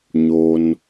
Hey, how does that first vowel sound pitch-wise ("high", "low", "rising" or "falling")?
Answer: high